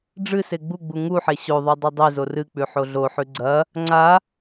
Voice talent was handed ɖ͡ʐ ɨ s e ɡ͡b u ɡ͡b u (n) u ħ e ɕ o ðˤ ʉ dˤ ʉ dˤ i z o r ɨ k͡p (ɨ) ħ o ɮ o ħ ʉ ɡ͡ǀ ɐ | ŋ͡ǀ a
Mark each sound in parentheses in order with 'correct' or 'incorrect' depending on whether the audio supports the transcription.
incorrect: ŋ, incorrect: ʉ

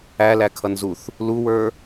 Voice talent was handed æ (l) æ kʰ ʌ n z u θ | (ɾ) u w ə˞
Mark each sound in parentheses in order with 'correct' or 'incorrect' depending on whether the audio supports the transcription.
correct, incorrect: l

